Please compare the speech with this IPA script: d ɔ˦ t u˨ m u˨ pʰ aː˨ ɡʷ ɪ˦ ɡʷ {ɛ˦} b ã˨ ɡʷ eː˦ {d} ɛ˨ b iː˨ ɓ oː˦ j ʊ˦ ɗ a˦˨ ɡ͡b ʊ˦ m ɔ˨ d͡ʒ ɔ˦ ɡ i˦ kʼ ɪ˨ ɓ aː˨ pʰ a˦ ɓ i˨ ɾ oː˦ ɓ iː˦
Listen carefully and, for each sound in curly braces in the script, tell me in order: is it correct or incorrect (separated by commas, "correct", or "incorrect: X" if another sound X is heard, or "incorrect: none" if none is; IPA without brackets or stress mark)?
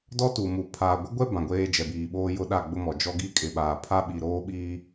correct, incorrect: d͡ʒ